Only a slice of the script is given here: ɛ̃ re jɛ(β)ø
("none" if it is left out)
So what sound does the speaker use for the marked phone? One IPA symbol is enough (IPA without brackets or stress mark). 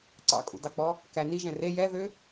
ð